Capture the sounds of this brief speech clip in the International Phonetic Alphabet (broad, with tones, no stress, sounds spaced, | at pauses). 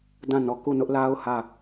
d ã˦˨ n ɔ˨ k u˦˨ n ʊ˦ ʔ l a˦ ʊ̯ h ä˦˨